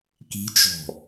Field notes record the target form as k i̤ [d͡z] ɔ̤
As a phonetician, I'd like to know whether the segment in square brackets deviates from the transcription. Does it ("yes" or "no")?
yes